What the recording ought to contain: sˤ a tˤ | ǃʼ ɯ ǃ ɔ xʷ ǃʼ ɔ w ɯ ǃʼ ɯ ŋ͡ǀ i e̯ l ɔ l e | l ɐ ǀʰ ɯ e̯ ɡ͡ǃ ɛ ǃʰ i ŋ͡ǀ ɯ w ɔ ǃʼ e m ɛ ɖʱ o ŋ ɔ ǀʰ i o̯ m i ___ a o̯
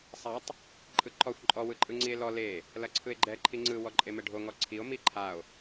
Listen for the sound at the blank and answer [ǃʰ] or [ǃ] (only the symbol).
ǃʰ